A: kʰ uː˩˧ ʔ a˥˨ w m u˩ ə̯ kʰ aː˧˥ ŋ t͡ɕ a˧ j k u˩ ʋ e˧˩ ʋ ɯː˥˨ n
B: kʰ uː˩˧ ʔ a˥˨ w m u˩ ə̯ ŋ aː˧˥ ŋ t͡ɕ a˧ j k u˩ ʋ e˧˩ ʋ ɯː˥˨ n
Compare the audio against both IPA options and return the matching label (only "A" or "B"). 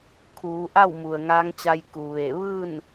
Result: B